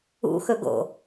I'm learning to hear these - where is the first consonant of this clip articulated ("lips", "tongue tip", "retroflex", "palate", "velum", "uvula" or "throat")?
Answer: velum